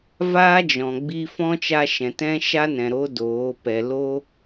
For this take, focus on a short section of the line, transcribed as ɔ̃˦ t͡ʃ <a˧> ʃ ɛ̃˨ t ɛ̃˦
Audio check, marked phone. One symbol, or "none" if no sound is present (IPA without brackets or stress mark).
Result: a˧